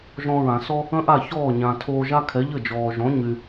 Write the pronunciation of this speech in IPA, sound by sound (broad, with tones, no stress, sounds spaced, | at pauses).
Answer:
ʒ ɔ̃˧ ɹ ã˩ s ɔ˥ | ə̃˥ ʔ a˥˩ ç ɔː˥˩ ɲ ã˩ tʰ oː˧ ʒ a˥ kʰ ɛ˩˥ ʎ ə˥˩ d͡ʒ ɔː˩ ʒ ɔ̃˩˥ ɲ y˩